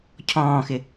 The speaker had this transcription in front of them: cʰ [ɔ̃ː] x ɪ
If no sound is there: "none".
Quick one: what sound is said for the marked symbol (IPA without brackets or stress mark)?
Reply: ɔ̃ː